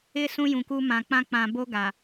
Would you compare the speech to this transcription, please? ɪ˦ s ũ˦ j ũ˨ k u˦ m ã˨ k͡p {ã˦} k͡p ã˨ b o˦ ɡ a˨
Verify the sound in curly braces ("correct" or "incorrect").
correct